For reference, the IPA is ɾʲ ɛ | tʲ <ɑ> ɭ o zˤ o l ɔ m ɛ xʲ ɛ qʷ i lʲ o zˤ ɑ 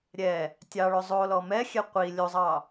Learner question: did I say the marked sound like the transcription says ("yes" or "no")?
yes